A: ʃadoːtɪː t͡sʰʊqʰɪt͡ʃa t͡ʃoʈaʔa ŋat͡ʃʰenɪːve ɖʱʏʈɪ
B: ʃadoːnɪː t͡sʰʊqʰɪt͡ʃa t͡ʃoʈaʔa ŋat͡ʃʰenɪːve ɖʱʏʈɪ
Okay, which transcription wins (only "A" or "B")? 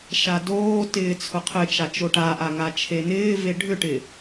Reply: A